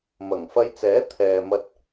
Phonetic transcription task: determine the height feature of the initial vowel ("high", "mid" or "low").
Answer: low